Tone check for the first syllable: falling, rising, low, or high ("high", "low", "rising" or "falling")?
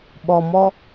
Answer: low